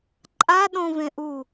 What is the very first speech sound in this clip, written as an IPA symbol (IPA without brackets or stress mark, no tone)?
ǃʼ